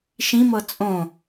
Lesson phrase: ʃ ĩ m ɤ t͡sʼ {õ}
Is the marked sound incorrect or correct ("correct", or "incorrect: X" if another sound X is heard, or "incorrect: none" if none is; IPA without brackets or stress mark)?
correct